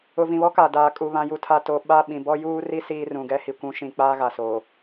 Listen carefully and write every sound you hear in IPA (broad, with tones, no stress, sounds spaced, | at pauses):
ʊ˨ v ĩ˨ β ɔ˦ k a˨ d aː˨ kʼ u˨ β ã˨ j u˨ tʰ a˨ t o˨ ɓ a˦˨ ɓ ĩ˨ b ɔ˦ j uː˦ r i˦ s iː˦ r ũ˨ ɡ ɛ˦ h i˨ kʷ ũ˨˦ ʃ ĩ˨ k͡p aː˦ ɣ a˨ s oː˨